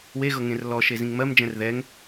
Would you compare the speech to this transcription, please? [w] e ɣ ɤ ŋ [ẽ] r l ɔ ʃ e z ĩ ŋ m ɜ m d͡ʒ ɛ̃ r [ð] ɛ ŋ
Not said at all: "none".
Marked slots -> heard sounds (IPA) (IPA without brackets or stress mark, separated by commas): w, ẽ, ð